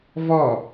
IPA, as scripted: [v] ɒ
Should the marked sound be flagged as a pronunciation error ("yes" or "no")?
no